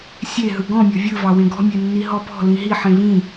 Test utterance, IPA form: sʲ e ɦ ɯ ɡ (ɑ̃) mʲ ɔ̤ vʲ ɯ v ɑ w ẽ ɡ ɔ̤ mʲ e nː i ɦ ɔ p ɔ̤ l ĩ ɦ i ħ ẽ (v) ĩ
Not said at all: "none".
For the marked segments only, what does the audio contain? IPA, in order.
ɔ̃, v

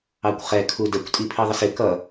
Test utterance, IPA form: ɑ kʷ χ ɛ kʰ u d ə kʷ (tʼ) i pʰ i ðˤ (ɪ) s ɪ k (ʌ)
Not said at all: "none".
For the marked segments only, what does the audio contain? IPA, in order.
tʼ, ə, ʌ

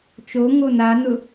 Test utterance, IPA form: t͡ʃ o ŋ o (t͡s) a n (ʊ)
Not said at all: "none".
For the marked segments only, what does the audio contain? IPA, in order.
n, ʊ

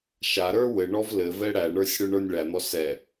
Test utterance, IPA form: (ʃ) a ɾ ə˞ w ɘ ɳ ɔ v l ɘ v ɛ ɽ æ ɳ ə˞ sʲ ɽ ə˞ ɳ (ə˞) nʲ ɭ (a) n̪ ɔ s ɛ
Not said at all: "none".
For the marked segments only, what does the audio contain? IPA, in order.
ʃ, ə˞, æ

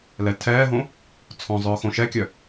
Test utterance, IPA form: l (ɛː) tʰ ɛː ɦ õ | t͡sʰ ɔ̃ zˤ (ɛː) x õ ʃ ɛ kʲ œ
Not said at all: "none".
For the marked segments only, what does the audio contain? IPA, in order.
ɛ, œː

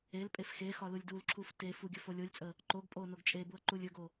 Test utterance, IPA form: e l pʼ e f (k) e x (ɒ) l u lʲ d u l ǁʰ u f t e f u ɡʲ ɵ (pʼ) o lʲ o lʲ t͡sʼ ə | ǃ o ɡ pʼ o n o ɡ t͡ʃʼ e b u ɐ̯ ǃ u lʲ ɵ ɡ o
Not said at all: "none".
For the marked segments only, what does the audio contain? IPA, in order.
x, ɒ, f

